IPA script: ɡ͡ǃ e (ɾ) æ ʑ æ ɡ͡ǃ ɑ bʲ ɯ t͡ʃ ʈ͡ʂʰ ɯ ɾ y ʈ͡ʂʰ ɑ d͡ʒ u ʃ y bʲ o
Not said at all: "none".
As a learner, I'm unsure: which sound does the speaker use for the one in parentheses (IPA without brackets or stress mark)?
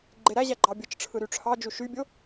ɾ